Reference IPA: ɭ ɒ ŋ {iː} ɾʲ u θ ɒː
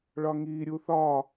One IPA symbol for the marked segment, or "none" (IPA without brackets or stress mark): iː